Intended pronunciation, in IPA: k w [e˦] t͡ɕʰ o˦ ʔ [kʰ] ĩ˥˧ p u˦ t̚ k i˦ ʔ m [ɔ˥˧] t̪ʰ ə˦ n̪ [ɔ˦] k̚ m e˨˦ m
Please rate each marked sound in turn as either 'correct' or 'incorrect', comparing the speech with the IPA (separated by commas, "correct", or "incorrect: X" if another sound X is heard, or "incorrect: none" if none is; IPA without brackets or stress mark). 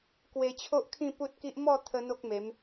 incorrect: e˧, correct, correct, incorrect: o˦